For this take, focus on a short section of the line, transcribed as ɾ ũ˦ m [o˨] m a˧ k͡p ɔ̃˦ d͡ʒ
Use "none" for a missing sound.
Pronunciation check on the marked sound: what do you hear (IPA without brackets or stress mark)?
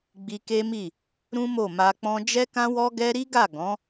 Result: o˦˨